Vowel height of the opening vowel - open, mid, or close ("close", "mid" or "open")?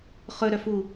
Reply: mid